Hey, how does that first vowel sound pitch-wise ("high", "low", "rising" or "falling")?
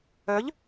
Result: rising